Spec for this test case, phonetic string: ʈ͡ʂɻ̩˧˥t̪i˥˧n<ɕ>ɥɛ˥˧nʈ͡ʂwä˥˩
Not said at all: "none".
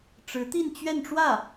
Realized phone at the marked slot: t͡ɕ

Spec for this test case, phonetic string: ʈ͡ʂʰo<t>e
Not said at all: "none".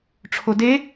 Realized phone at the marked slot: d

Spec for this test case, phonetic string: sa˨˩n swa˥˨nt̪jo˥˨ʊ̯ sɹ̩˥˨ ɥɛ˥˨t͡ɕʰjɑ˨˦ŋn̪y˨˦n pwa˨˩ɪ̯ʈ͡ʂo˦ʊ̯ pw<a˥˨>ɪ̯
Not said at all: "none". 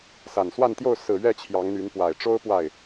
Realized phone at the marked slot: a˥˨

